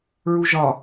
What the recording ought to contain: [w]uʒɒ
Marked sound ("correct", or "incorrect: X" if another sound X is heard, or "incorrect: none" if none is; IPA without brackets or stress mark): incorrect: ɹ